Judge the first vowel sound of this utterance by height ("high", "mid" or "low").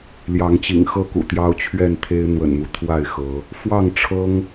low